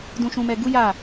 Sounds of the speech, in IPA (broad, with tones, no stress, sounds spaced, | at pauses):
d ũ˧ ʃ ũ˧ m ɛ˧ ɡ u˦ j a˦˨